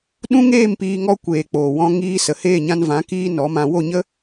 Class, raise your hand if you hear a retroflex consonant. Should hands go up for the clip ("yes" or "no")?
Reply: no